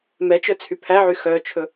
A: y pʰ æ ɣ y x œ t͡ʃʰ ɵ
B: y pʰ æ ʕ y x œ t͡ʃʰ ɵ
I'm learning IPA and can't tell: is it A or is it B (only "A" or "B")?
B